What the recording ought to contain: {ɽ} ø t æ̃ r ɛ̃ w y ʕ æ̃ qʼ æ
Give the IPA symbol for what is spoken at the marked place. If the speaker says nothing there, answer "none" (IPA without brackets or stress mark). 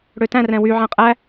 ɽ